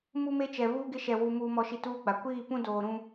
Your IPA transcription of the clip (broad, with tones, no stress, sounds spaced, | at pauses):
m u˦ m e˦ t͡ʃ ɛ˨ β uː˦ ɡ ɪ˦ ʃ ɛ˨ w u˨ m uː˨ m ɔ˨ ʃ i˨ t uː˦ ɡ͡b a˨ kʷ iː˦˨ p ũ˦ d oː˨ ɾ ũ˦